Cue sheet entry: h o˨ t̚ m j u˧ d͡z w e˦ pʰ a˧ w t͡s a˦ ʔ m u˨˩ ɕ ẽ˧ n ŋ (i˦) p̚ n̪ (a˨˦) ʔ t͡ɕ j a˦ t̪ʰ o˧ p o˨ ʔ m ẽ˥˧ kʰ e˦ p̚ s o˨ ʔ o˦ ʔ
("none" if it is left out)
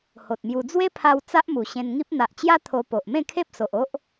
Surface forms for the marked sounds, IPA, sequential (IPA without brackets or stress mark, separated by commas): i˦, a˨